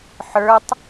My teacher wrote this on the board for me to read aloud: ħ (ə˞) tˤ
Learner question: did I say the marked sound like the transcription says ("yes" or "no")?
yes